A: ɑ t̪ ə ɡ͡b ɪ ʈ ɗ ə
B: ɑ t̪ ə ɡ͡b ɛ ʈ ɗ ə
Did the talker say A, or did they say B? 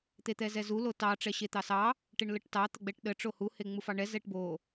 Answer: B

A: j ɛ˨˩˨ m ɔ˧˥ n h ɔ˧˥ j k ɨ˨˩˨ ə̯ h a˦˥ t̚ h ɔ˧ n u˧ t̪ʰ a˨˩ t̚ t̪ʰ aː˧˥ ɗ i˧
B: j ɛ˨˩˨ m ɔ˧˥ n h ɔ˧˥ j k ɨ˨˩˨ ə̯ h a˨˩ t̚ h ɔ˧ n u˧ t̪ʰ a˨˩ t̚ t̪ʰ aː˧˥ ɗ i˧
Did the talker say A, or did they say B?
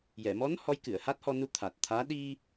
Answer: A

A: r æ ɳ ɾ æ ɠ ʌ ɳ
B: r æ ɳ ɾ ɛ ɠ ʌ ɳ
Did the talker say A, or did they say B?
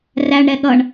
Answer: B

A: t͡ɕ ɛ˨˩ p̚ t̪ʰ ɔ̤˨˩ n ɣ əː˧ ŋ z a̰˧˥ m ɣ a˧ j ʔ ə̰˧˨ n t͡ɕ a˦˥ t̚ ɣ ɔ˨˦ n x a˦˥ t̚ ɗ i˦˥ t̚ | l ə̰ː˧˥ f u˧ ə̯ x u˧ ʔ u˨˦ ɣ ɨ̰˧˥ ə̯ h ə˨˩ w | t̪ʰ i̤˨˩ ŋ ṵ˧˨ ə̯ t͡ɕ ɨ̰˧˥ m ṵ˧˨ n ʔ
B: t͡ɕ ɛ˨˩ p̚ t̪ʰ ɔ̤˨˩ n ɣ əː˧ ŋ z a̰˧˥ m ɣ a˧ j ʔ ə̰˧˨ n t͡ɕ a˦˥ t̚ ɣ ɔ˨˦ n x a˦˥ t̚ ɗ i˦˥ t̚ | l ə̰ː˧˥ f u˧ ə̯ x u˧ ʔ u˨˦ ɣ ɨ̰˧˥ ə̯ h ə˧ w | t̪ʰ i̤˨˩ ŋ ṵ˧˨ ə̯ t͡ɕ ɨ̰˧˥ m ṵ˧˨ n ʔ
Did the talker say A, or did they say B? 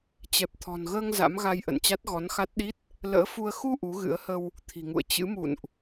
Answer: B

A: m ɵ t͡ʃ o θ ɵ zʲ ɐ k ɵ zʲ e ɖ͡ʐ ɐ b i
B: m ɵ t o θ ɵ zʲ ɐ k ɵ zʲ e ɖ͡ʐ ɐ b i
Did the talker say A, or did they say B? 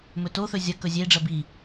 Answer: B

